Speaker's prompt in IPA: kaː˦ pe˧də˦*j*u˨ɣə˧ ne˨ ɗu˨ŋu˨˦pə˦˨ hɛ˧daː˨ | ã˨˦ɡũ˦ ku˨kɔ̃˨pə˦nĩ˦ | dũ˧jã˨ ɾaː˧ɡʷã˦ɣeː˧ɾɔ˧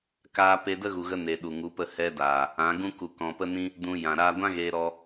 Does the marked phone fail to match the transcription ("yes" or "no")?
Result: yes